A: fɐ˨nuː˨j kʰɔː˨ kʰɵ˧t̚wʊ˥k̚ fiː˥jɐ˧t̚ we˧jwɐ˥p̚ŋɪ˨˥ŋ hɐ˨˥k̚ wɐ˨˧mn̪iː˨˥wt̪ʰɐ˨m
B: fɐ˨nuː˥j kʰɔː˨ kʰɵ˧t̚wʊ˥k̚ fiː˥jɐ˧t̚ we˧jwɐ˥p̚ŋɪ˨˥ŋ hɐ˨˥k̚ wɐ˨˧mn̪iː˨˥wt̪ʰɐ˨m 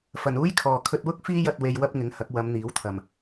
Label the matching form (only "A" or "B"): B